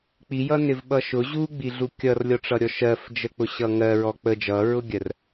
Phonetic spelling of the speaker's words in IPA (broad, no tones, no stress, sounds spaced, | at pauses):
k͡p i j ʌ n ɪ v ɓ ʌ ʃ ʊ ʑ u ɡ͡b i ɮ u kʲ ʌ r lʲ ɔ ʈ͡ʂ ʌ ɾʲ ɔ ʃ ɜ f d͡ʒ ə k͡p ʊ ɕ ʌ ŋ ɜ ɹ ɔ k͡p ə d͡ʒ ʌ ɹ ʊ ɡʲ ɜ r